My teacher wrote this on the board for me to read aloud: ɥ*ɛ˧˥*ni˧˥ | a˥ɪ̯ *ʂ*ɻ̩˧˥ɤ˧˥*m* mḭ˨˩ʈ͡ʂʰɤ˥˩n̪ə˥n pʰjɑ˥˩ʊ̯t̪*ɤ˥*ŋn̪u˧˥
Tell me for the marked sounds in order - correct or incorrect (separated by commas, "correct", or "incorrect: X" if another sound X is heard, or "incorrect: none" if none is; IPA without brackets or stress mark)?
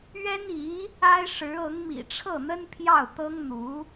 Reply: incorrect: ɛ˥, correct, incorrect: ŋ, correct